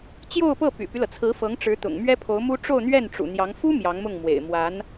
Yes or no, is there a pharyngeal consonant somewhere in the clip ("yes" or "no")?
no